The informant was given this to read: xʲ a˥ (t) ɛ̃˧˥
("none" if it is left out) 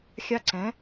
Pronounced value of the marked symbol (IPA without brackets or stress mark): ǀ